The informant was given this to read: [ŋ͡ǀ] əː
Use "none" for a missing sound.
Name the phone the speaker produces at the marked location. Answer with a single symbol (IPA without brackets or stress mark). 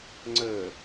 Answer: ŋ͡ǀ